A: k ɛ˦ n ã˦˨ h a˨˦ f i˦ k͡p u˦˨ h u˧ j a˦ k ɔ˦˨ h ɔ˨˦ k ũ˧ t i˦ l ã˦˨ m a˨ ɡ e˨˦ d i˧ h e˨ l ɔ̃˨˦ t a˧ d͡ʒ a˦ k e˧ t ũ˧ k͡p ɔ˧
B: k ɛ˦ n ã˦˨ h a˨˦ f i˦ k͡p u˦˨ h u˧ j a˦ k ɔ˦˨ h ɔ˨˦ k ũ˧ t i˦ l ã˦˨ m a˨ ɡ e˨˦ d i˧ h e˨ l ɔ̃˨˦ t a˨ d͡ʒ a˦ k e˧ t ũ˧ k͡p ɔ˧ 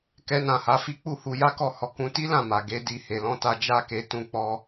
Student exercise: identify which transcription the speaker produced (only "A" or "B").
A